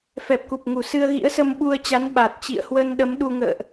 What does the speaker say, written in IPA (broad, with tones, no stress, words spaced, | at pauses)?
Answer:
fɛ˨˩p̚ku˨˩p̚ ŋu˧˩sɨ˧ə̯ ɣḭ˧˥ə̯sə˧mɓu˧ə̯t͡ɕa˨˦n ɓa˨˩t̚ t͡ɕḭ˧˨ə̯hwə˧nɗə˨˦m ɗu˧ ŋə̰ː˧˨ʔ